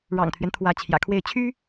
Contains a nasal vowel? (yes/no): no